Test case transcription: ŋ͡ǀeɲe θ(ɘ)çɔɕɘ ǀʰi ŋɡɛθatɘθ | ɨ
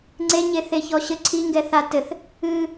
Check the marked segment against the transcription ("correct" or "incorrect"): incorrect